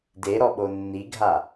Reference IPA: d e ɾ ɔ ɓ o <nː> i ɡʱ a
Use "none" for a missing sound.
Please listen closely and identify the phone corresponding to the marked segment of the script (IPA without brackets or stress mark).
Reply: nː